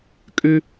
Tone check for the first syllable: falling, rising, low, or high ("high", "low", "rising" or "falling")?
low